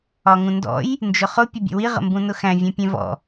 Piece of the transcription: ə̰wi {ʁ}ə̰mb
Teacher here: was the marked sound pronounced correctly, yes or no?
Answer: yes